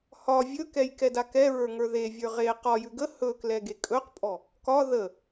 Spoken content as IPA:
hɒ vʲɵkɛj kɛdakɛɹə˞ ŋə˞ðevʲə˞ ʁe qɒjʉ ɡə hɵklɛ ɡekʼɵqpʼɔ | kɒ ðə

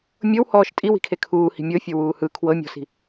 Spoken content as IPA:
mʲɤwhɔːʃ tʼiwi̤kʰe kʰuːhi̤ mʲɤfʲɤwuː hɯ kʰwɤmʲɔ̤si̤

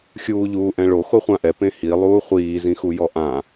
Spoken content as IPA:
xʲuːʎuːʔɛ̃ɭo xoχʷãʔɛ pẽhi lˠuːχʷiː zĩxujɔʔã

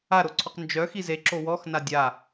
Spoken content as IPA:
aɾoǀʰɔq nd͡ʒœ xizeǁo wɔx nadʲa

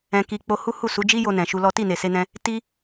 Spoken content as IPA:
ɛ̃˧ ki˧k͡po˧ hu˦hu˦˨su˨˦ d͡ʒi˦jo˧ nɛ̃˨ʃu˧lɔ˦ ti˦˨ne˨se˧nɛ̃˧ | ti˦

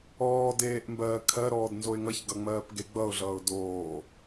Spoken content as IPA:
ɔːdeːʔmbɜː kʰɜɾɔːdnzoɪ̯ ŋʌçɡʌŋ͡mɜːp ɡeɡ͡bʌʊ̯ɮʌːʊ̯ doː

